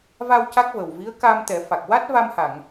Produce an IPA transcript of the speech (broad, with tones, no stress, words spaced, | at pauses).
va˧w ca˦˥k̚və˨˩wvi˧˥ə̯ ka˧mt̪ɛ˨˩˦ fa˨˩k̚wa˦˥t̚ va˧mha˨˩˨ŋ